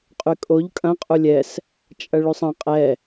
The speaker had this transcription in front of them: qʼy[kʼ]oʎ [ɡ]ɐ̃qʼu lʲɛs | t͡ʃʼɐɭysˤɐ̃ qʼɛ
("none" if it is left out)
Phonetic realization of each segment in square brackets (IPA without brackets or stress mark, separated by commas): kʼ, kʼ